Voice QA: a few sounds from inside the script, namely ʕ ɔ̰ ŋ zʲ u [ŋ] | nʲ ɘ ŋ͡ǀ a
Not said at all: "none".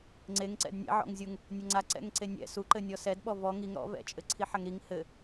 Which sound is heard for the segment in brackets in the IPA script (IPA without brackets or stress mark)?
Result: ŋ